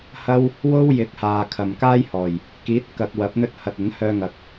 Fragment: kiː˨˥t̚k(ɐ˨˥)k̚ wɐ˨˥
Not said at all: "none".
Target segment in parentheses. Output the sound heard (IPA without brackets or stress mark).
ɐ˨